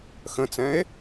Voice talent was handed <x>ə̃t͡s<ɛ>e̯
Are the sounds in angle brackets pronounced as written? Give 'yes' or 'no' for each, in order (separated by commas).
yes, no